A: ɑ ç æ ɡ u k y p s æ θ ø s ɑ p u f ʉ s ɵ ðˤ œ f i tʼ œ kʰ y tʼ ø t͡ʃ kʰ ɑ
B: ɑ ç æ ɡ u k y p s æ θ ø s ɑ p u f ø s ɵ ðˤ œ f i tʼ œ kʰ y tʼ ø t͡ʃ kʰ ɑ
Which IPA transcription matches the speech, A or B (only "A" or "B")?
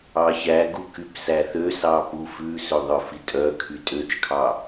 A